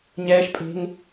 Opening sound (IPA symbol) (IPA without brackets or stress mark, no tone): ɲ